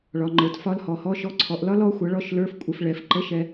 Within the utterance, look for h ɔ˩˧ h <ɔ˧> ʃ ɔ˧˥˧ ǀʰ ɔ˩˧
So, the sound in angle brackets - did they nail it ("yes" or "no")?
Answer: no